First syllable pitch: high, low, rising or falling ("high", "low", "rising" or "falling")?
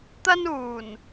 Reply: high